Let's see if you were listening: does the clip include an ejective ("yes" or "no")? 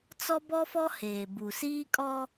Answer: yes